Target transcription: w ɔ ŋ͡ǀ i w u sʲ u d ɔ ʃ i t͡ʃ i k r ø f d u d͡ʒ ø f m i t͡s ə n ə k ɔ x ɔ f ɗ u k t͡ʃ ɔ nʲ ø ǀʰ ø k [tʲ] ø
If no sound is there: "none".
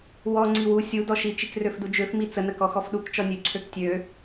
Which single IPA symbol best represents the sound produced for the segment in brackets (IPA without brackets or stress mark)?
tʲ